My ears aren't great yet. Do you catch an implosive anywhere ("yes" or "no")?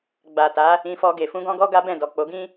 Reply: no